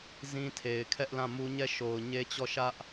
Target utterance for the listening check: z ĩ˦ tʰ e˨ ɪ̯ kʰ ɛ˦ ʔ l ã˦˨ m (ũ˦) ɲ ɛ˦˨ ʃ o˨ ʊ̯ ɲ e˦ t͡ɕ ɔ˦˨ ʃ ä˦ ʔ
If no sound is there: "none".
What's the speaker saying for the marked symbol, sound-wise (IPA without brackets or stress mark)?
u˦